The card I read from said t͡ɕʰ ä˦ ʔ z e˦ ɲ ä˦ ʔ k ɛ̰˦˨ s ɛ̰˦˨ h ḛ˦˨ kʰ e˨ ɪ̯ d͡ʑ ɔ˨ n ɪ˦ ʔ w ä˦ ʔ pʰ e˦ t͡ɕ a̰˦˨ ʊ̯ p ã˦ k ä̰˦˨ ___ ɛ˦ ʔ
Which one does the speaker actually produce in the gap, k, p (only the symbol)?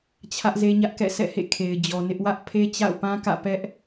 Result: p